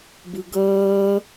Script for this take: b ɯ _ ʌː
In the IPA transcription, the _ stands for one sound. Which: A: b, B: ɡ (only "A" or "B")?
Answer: B